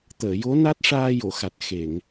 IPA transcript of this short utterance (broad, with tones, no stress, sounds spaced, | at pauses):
t̪ əː˨˩˨ j o˧˥ n a˦˥ t̚ ʂ aː˧ j o˨˩˨ x a˨˩ t̚ x e˨˩˨ ŋ